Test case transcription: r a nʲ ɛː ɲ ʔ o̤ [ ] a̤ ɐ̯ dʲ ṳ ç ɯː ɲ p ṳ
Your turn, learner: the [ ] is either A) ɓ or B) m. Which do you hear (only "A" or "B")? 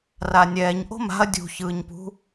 B